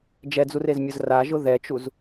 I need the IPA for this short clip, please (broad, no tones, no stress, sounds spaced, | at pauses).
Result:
d͡ʒ ɛ d͡z u r e z mʲ ʊ z r a ʒ ʊ ð ɛ t͡ʃ u z